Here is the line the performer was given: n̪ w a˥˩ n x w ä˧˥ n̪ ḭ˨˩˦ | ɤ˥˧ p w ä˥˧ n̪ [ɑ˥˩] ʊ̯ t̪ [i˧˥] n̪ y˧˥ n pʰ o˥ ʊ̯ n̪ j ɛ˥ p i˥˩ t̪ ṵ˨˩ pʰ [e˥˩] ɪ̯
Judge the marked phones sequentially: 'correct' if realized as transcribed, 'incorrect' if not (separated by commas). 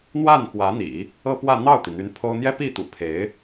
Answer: correct, incorrect, incorrect